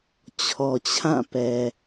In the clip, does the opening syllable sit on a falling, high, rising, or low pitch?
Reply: low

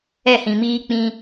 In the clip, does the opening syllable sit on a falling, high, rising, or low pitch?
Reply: falling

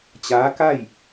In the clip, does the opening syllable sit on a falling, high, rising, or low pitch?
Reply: rising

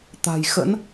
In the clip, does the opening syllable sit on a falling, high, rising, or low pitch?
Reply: low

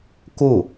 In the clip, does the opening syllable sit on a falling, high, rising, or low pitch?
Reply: falling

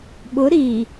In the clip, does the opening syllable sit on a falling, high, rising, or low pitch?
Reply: rising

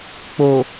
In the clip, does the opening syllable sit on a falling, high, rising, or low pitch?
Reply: low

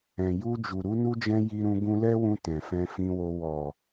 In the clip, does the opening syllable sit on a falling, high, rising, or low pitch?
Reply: low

